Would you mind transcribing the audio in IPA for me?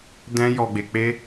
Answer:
dɛ̃˦jɔ˧ɡ͡be˧k͡pe˦

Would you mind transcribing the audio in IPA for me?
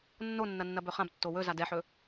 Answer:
nːonːɐnːɐbɵ χãbtːo wɵza dɛħɵ

